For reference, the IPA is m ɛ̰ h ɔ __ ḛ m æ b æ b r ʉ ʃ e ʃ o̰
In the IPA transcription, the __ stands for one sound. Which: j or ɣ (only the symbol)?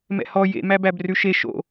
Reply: j